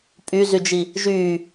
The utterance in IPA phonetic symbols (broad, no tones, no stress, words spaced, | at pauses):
pʼyzyd͡ʒi | ʒyː